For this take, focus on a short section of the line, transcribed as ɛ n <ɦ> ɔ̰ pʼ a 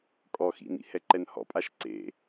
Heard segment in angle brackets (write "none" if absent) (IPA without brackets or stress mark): h